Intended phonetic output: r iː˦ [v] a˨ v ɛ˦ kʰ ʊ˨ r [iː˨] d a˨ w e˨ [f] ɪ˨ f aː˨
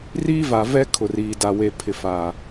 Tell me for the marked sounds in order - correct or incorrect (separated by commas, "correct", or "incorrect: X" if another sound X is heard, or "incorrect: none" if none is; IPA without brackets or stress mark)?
correct, correct, incorrect: pʰ